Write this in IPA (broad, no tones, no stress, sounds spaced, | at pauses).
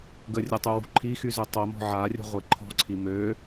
ɡ ə rʲ ə tˤ u w ṳ ǃʰ i x y z ø tˤ œ m ɔ̤ ʕ a rʲ ə̤ ʁʷ i ǃʰ ɔ̤ ǀʰ i m ø